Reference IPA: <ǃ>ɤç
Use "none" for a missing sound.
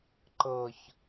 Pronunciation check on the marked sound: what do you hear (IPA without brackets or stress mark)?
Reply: ǃ